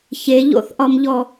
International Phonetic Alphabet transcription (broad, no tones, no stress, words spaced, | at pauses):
çeʎo̰θʔɒmʎɔ